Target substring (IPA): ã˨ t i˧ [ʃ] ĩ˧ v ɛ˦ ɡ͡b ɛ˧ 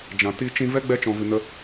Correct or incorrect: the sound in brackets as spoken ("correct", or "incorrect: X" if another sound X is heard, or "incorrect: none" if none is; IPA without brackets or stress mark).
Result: incorrect: t͡ʃ